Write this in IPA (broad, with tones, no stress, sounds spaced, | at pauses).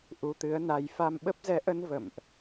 ʔ u˧ t̪ ɨ˨˦ ə̯ n a˧ j f a˧ m ɓ ə˦˥ p̚ z ɛ˨˦ ʔ ə˧ n v ə̰˧˨ m ʔ